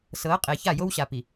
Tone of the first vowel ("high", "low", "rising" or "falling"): rising